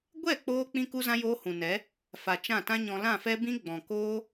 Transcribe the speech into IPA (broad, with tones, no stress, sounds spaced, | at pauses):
ɡʷ ɛ˦˨ k͡p oː˧ k͡p ĩ˦ k u˦ z ã˦ j oː˦ h ũ˨ n ɛ˨˦ | f a˨ t͡ʃ ã˦˨ t ã˦ ɲ ɔ̃˧ l ã˦˨ f ɛ˦ b ĩ˦ ɡ͡b ɔ̃˨ k oː˦